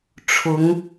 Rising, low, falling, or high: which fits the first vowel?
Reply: rising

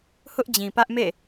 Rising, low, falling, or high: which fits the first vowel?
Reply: high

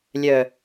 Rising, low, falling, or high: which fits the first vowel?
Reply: low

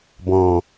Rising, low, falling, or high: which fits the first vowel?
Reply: low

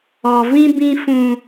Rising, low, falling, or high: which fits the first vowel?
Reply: low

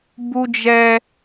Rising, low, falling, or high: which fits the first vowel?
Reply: high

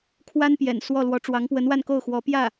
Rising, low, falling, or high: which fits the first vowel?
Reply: high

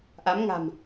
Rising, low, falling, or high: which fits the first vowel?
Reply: rising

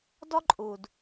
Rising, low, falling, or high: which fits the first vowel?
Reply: high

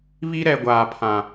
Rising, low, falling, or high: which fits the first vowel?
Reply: high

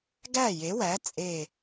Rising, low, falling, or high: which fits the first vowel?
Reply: falling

